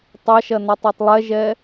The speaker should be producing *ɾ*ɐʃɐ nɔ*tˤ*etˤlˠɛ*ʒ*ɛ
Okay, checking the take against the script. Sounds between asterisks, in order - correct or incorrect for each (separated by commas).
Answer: incorrect, correct, correct